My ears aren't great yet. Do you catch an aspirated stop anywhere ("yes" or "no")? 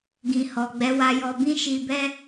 no